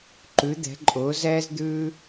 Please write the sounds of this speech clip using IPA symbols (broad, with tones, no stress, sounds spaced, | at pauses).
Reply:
ǃ ʉ˨˦ d̪ ɛ̤˨˦ ǃʼ ʊː˨˦ z ɛː˦ z d̪ ʉː˦